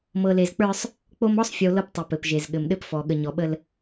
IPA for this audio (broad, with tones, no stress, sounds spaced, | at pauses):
m ɤ˨ l e˨ z k͡p ə˞˦ sˤ | k͡p o˦ m ɔ˦ sˤ fʲ o˨ l ɤ˦ p tˤ e˨ p ɘ˨ p ʒ e˨ z ɠ ɘ˨ m ɗ ɘ˦ p f ɔ˨ ɠ ə˨ ɲ ɔ˨ ɓ ə˦ l